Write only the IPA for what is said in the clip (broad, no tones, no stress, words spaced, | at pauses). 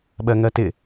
ɓɜŋɜtɪ